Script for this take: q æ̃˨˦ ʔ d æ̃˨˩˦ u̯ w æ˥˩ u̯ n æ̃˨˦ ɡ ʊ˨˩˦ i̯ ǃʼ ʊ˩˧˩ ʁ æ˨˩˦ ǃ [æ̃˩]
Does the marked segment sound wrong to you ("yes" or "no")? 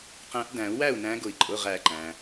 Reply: no